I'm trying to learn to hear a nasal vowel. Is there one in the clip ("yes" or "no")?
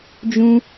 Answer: yes